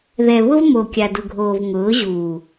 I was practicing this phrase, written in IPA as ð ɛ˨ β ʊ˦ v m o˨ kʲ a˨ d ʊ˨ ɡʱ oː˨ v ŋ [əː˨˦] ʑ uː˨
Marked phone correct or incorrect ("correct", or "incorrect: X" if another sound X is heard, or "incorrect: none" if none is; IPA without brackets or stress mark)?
incorrect: ʊː˨˦